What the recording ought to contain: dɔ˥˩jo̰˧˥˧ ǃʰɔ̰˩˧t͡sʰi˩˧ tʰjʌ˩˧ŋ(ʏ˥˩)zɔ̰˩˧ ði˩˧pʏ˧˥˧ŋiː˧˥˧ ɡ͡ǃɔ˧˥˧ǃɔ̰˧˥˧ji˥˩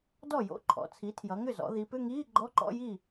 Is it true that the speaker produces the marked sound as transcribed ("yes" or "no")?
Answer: yes